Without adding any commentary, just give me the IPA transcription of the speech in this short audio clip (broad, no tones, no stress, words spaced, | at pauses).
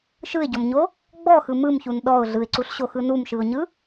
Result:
ʃɯɪ̯ɟɔmɲo | ɡ͡bɔxɯ mɯmçun ɗɔʊ̯ ɮɯɪ̯ǀuɬɕoxɯ numʃɯʊ̯ɲɯ